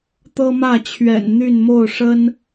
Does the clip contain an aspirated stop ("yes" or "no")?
yes